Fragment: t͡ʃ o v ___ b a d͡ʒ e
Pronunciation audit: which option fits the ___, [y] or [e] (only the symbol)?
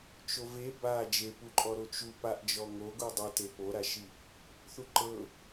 e